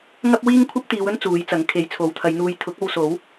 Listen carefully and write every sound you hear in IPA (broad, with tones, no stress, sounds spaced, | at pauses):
ŋ ɐ˥ p̚ w iː˥ ŋ kʷʰ ɐ˥ p̚ t̪ iː˨˧ w ɵ˥ n t͡s uː˨˧ j t͡s ɐ˨˥ ŋ kʰ e˨˧ j t͡sʰ o˨˥ w t̪ʰ ɐ˨˧ j n̪ uː˧ j t̪ʰ ʊ˨˥ k̚ o˧ w s o˨˥ w